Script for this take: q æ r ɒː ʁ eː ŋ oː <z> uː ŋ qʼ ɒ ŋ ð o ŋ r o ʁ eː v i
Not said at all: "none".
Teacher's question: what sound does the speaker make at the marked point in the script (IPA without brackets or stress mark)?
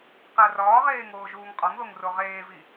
ʒ